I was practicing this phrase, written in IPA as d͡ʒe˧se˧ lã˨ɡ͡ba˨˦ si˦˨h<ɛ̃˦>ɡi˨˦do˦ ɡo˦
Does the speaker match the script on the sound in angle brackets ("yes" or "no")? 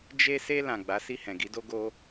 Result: no